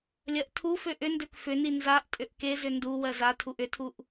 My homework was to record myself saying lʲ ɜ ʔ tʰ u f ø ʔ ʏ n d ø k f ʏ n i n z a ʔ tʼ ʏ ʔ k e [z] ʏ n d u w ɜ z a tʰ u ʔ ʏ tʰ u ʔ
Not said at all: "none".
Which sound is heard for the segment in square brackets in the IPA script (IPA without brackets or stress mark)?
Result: z